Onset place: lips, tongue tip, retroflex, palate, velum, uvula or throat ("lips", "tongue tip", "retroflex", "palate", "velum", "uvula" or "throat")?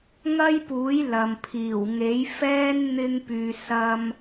velum